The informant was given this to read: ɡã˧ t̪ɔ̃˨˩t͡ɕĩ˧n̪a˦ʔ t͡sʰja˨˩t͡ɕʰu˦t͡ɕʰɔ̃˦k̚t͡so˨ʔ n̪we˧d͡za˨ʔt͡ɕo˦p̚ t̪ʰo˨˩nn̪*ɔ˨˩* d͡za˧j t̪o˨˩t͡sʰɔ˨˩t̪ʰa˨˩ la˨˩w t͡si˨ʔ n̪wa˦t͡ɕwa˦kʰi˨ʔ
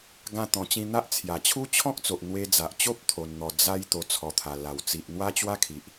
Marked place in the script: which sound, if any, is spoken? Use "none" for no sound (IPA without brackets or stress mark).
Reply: ɔ˨˩